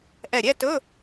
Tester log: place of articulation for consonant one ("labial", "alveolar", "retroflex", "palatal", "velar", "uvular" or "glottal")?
glottal